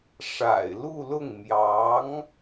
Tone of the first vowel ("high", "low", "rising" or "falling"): low